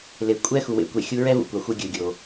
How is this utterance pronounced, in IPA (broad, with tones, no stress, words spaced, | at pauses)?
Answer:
le˩ kʷʼɛ˥ xu˩wḛ˧kʷe˩ xʲu˧ɹɛ˥vṵ˩ kʷa˩xʷɯ˧ ɡʲɯ˩ɡʲo˩